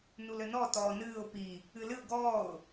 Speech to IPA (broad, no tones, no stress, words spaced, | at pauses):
nulɘnɔ tɔːnɨːʊ̯ pi | ɨlɨʊ̯ ɡɔːʊ̯